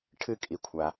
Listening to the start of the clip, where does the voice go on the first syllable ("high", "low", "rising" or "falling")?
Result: falling